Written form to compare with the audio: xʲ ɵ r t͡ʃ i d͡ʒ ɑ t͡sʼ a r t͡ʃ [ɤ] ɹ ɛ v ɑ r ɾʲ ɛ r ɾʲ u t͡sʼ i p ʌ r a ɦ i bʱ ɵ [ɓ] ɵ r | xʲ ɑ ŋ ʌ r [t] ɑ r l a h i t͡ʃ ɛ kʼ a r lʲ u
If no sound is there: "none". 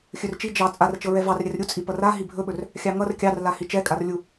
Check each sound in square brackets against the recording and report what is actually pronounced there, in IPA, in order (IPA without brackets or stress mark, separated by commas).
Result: ɤ, ɓ, kʲ